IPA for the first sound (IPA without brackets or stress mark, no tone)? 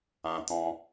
ã